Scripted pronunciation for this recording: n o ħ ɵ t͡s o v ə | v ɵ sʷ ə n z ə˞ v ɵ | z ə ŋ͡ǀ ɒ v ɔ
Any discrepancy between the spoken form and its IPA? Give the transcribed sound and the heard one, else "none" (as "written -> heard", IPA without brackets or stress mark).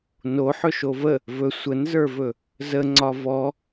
t͡s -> ʃ